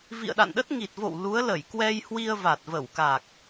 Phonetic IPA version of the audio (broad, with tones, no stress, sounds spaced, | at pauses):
v ḭ˧˨ ə̯ ɗ a̰˧˨ n ɗ ə˦˥ t̚ ŋ i˨˩ t̚ v o̰˧˨ w l u˨˦ ə̯ l ə˧˩ j k w ɛ˧ j h w i˧ ə̯ v a˨˩ t̚ v ə˧˩ w k a˨˩ k̚